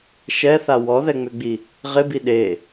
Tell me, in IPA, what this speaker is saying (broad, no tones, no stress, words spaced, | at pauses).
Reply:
ʃɛθa wɔðɛŋ͡mʏɡ͡bi | ʁɪbi ɗe